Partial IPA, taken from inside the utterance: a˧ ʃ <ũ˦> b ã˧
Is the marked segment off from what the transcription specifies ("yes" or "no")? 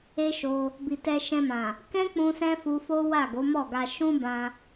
no